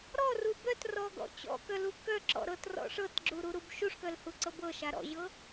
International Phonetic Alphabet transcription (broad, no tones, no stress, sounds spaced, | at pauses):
ɾ ɔ r u b œ t r ɔ ɡ ɔ̰ t͡ɕ ɔ̰ k œ l u k œ ǁ ɔ̰ ɾ ɤ t r ɔ̰ ʂ ɤ t ɡ͡ǁ u ɾ u ɾ u b ʃ u ʂ k œ l h u ǀ ɤ b ɤ ʃ a ɾ ɔ̰ ʑ ɤ